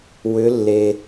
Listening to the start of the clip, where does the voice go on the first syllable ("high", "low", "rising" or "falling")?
rising